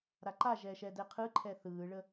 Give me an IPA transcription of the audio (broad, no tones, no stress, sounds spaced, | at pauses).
ɾ a ǃ a ʒ ɛː ʃ ɛ d ɛ qʰ ɯ ǃʰ ɛ θ ɯː ɭ ə